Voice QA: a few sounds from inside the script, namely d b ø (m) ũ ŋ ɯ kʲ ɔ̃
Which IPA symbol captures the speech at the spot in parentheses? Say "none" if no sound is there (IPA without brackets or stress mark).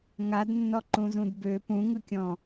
p